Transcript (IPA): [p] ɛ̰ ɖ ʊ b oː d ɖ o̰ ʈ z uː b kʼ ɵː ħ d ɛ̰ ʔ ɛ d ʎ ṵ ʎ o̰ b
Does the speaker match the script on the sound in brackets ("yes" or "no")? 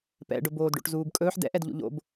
yes